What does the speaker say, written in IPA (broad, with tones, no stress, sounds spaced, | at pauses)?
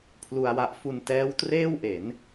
pʰ l u˧ a̯ w a˦˥ ʔ f u˧ n t ɛː˦˥ w t r eː˥˩ w ʔ e˩˦ n